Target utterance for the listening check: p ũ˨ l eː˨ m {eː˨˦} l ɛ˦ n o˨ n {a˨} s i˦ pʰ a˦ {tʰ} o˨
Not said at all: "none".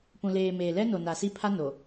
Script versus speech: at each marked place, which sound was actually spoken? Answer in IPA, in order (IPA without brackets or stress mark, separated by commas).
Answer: eː˨, a˨, n